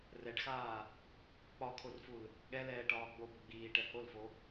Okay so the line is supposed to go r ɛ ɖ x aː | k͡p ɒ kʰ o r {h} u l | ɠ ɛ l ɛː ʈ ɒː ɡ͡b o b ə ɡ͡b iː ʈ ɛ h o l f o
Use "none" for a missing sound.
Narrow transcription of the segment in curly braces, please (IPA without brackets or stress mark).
f